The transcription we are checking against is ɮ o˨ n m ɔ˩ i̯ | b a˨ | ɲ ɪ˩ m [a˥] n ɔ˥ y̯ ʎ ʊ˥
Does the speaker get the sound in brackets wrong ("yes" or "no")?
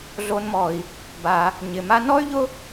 yes